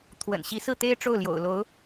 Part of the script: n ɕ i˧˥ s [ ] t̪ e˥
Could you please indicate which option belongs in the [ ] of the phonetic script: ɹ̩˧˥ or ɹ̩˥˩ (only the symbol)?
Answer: ɹ̩˥˩